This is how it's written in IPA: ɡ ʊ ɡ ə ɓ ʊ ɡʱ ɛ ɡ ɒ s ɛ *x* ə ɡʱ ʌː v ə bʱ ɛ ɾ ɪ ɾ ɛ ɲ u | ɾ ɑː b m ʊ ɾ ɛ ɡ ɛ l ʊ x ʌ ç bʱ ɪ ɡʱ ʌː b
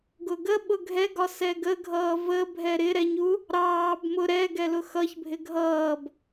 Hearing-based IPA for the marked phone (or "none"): ɡ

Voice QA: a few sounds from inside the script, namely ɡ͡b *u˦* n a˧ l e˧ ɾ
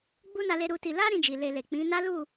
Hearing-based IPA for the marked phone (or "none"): u˦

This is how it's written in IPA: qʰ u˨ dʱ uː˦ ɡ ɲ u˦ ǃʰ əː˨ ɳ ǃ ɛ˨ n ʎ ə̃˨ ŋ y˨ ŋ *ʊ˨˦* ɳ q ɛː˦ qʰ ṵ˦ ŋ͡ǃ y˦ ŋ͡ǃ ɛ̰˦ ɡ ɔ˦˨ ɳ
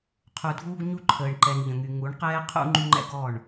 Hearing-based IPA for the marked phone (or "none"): u˨˦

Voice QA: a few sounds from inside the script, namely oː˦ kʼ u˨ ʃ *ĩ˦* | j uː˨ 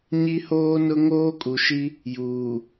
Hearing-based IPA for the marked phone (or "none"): i˦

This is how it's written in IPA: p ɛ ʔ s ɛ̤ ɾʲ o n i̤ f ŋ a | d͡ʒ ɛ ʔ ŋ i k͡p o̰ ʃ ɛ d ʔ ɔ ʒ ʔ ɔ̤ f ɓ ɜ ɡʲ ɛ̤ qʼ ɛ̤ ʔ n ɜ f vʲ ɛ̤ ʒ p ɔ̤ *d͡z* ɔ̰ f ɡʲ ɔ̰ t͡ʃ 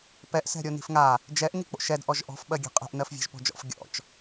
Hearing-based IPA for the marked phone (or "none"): d͡ʒ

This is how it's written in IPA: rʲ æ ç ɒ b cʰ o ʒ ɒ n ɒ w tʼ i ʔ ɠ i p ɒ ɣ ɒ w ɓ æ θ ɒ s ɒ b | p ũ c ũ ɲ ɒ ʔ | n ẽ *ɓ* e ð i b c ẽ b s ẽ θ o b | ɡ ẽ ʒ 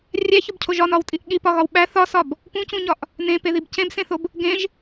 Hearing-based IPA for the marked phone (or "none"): p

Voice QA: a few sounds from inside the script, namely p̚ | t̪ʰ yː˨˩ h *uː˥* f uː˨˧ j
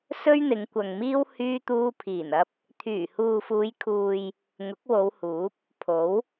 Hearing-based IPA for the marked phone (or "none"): uː˨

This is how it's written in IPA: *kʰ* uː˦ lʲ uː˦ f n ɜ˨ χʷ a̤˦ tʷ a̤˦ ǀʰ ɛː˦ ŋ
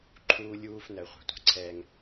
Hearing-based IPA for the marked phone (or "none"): ǃʰ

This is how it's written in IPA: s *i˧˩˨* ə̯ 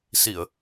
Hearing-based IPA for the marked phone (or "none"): i˧˩˨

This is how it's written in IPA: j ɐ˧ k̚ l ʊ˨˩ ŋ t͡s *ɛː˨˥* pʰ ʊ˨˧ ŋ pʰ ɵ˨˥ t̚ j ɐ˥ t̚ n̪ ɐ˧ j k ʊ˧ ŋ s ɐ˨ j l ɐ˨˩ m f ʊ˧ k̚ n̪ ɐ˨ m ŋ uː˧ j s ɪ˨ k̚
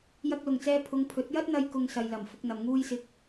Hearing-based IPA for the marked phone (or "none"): ɛː˧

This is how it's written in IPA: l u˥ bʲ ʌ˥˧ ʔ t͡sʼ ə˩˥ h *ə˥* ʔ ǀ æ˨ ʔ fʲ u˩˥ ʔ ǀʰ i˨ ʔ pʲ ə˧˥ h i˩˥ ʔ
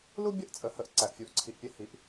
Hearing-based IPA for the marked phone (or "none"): ə˩˥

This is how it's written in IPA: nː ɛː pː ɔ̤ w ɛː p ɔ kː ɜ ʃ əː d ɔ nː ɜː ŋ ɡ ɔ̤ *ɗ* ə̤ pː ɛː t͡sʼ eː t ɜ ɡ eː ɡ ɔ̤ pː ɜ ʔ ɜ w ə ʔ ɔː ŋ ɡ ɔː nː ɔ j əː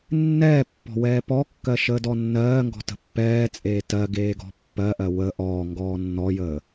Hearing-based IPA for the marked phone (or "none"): t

